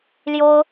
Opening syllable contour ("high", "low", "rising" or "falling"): high